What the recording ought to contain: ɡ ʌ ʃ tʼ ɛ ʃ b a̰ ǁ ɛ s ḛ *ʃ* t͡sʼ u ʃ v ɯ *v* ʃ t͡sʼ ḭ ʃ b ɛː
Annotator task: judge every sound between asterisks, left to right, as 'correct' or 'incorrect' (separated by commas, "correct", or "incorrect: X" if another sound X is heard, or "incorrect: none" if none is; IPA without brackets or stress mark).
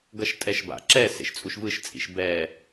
correct, incorrect: none